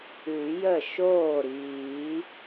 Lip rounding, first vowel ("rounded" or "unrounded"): rounded